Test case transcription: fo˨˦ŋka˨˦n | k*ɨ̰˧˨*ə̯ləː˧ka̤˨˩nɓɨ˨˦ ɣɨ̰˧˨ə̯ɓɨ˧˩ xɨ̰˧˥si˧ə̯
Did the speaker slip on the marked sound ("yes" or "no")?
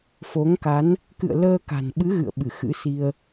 no